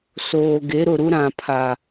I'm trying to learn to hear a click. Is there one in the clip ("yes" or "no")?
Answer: no